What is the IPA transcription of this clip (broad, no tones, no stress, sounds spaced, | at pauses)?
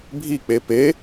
bʱ i k͡p e p e